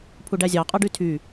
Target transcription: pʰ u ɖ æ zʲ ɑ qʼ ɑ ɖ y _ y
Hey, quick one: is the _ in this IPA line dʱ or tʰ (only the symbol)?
tʰ